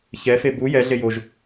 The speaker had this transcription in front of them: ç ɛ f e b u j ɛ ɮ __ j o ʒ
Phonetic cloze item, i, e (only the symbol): e